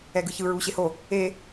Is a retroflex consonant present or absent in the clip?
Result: absent